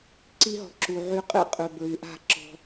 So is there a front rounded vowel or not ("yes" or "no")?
yes